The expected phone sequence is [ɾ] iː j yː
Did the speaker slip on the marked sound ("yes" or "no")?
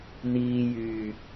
yes